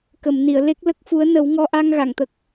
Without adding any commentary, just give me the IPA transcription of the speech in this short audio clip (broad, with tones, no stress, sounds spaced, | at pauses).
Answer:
k ə˨˩˨ m n i˨˩˨ ə̯ l e˦˥ k̚ l ə˦˥ k̚ f u˧˥ ə̯ n ə˨˩˦ w ŋ ɔ˧ ʔ a˧ ŋ ɣ a˨˩˨ ŋ t̪ ə˨˩ k̚